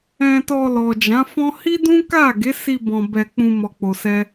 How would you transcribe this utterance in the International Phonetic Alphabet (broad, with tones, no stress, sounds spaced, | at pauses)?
ɛ̃˧ t ɔ˧ l ɔ˨ d͡ʒ ã˨˦ f ɔ̃˦ h i˦ d ũ˦ k a˦˨ ɡ e˨˦ s i˧ b ɔ̃˨ b ɛ˧ k͡p ũ˧ m ɔ˧ k͡p o˧ s ɛ˦